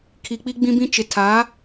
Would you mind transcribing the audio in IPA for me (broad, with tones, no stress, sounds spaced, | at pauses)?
kʰ i˨ k͡p i˦ ɡ͡b ĩ˦ b ĩ˦ t͡ʃ ɪ˨ tʰ a˨˦